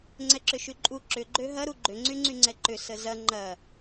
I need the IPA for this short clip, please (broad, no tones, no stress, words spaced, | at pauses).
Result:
ŋ͡ǀɛǁʏʃyǃʼu ǁʏ ɡ͡ǃøɦɐɾu ɡ͡ǃʏŋ͡ǀyŋ͡ǀyŋ͡ǀɛ ǃʏ səzɐ ŋ͡ǃɐ